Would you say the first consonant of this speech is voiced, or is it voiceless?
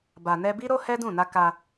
voiced